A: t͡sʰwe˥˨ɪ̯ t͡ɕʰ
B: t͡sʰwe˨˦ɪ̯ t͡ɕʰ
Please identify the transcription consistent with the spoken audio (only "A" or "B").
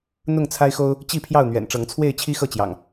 A